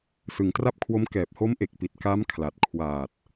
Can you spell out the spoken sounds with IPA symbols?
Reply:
s ɯ˨˩ ŋ t r a˥˩ p̚ kʰ w o˦˥ m k ɛː˨˩ p̚ h o˦˥ m ʔ e˨˩ k̚ p i˨˩ t̚ k a˦˥ m kʰ l a˨˩ t̚ kʰ w aː˨˩ t̚

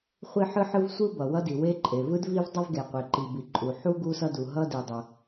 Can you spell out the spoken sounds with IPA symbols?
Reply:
χʷ i˥ ħ ɯ˥ ħ ɯ˥ v sʷ ɯ˥ b ʌ˩ w ʌ˥ d i˩ w e˥ ǃʼ e˩ v ɯ˥ d v i˥ v dˤ a˥ v ɡ e˩ qʷ e˩ ǃ i˩ b i˩ ǃʼ u˩ ħ u˥ ɡ u˥ s ʌ˥ d u˩ ɦ ʌ˥ d i˩ dˤ ʌ˩

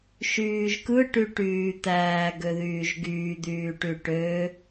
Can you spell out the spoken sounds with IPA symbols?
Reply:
ʃ yː ʒ k ɯ ʈ y ʈ yː t̪ æː ɡ ø ð yː ʒ ɡ yː d̪ yː ʈ y ʈ ø

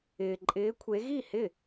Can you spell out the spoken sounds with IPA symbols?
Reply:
ɪː˩ ǃʼ ɪː˨˦ kʷʰ e˨˦ ɣ i˥˩ h ɪ˥˩

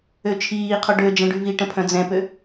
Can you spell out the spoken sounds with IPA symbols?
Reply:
ø t͡ʃʰ iː qʰ o ɖ ø d͡ʒ ɛ̃ ɖ y v i ʈ ə̃ pʰ œ̃ d͡z ɛ̃ p ø

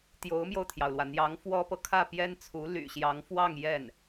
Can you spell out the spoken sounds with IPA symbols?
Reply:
t̪ j o˧˥ ʊ̯ m j o˧ ʊ̯ t̪ʰ j ɑ˩ ʊ̯ l w ä˩ n̪ j ɑ˧˥ ŋ f w ɔ˥ p ɤ˨ kʰ ä˥˩ p j ɛ˥ n t͡sʰ u˧˥ l y̰˨˩ ɕ j ɑ˧˥ ŋ f w ɑ˥˧ ŋ j ɛ˥˩ n

